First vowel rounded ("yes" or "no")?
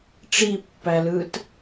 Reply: no